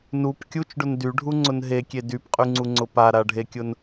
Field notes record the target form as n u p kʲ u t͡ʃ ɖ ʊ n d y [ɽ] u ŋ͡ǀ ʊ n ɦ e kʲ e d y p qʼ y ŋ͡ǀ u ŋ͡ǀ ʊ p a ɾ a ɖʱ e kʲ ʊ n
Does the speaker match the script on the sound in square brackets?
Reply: no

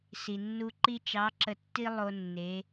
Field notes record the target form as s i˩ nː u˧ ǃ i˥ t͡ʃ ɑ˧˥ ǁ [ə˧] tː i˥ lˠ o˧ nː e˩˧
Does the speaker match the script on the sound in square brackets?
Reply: yes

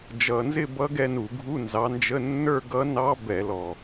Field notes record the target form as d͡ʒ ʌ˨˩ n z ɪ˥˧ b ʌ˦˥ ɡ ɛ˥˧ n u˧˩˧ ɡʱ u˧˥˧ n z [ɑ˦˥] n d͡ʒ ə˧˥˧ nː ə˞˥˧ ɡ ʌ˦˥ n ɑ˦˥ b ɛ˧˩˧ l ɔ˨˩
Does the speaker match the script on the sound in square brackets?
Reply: no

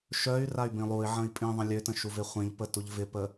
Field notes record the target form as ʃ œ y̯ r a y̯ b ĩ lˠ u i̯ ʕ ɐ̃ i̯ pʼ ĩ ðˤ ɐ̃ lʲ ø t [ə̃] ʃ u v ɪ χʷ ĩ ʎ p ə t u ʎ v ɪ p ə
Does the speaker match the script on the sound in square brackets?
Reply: yes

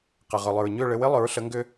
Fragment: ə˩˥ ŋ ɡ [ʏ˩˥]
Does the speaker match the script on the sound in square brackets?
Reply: no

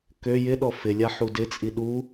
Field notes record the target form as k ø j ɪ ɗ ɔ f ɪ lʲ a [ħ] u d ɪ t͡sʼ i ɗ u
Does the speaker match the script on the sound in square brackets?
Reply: yes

